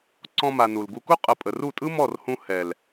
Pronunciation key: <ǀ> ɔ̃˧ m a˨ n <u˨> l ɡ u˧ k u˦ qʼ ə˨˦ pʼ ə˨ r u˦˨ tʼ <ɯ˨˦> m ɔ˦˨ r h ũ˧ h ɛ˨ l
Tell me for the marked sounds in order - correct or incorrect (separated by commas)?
correct, correct, incorrect